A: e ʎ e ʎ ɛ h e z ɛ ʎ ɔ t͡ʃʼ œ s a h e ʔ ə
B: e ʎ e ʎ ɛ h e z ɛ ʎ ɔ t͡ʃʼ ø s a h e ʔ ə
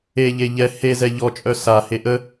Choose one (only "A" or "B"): A